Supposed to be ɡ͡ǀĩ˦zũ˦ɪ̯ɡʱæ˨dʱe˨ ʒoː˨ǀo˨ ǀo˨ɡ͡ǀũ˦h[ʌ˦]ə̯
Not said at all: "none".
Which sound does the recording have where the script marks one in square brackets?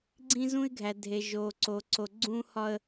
ɒ˦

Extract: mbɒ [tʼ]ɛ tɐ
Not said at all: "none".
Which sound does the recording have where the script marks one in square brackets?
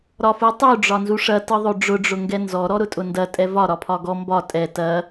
tʼ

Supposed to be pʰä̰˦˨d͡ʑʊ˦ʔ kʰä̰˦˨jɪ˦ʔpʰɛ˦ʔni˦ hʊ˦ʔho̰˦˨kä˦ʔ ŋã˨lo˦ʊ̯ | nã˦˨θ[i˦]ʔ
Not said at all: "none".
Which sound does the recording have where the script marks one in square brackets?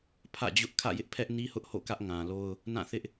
ɪ˦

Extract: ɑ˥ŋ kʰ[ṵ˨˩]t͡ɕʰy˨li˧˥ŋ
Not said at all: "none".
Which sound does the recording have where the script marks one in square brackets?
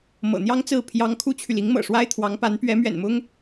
u˥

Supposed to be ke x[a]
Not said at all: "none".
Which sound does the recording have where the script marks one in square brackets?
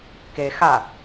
a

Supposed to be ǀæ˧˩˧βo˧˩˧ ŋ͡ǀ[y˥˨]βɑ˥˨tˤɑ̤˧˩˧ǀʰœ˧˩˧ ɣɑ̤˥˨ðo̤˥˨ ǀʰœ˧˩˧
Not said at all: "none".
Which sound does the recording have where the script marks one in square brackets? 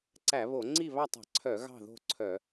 i˥˨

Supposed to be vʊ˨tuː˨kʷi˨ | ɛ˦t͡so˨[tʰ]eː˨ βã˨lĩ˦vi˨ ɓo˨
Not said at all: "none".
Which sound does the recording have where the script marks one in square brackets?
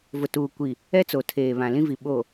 tʰ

